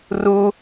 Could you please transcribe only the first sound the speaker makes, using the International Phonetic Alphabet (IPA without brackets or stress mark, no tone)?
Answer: r